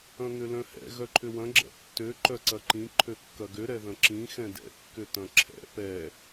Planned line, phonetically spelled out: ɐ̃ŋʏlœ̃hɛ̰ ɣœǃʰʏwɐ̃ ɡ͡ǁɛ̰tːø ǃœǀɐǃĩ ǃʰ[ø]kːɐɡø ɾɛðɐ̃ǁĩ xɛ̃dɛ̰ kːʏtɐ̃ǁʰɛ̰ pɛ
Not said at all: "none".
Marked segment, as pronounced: ø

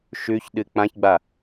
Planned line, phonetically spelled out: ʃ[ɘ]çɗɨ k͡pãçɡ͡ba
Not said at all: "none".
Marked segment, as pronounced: ʉ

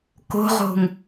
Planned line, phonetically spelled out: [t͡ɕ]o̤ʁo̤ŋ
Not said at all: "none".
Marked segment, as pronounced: k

